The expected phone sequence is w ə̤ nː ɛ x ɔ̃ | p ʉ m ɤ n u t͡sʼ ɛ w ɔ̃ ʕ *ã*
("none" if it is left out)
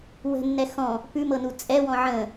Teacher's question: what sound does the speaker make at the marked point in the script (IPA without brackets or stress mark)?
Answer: ə̃